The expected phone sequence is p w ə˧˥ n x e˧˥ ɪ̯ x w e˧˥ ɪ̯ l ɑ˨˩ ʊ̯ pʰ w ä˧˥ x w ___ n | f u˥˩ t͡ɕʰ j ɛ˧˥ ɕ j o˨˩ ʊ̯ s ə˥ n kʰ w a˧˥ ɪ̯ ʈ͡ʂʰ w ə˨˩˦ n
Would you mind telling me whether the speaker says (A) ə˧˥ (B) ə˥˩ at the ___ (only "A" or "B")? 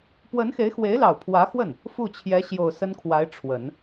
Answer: B